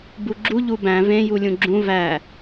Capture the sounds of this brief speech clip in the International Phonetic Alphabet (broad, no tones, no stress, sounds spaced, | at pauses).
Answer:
b u ɡ͡ǁ u ʎ u b æ̃ v ẽ j u lʲ ũ ɡ͡ǁ ũ v æ